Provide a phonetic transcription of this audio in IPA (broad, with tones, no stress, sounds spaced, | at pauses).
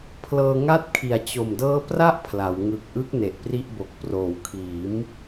pʰ l ɤː˧ ŋ a˥˩ t̚ kʰ i˨˩ a̯ t͡ɕ o˨˩ m d ɤː˦˥ p r a˥˩ ʔ pʰ l a˩˦ w ŋ ɯ˨˩ k̚ ʔ ɯ˦˥ k̚ n e˨˩ ʔ p r i˥˩ ʔ b o˨˩ k̚ p r oː˩˦ w kʰ iː˩˦ m